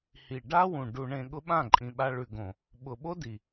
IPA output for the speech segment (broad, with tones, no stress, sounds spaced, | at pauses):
h i˨ ɖ a˦ w ũ˨ ɖ u˨ ɳ ẽ˨ ɠ ʊ˦ ɓ ã˦˨ ǃʼ ĩ˨ ɓ a˧ ɭ ʉ˨ ɡ õ˨ | ɓ ʊ˨ ɓ o˦ d i˨